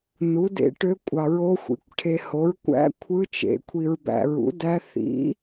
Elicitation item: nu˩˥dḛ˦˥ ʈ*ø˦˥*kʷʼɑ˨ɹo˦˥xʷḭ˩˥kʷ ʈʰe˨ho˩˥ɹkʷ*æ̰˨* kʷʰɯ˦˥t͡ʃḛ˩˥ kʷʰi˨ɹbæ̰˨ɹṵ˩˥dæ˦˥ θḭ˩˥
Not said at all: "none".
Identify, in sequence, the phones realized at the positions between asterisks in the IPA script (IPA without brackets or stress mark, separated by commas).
ø˦˥, æ̰˦˥